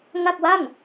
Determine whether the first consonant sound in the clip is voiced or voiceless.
voiced